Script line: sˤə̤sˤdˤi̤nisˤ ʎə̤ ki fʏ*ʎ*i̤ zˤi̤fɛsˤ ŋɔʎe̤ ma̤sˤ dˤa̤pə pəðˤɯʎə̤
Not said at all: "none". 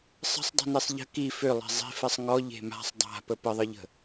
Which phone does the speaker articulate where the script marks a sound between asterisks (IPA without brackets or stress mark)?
lˠ